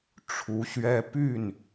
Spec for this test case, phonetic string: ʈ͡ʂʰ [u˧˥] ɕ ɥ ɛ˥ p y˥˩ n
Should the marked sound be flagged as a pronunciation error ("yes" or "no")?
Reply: no